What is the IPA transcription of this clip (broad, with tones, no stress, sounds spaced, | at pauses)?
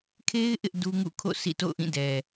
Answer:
kʰ e˦ ɪ̯ ʔ ɪ˦ ʔ d u˦ ŋ ṵ˦˨ kʰ o̰˦˨ sʰ ḭ˦˨ t o̰˦˨ ʊ̯ ʔ ĩ˦˨ d ɛ˨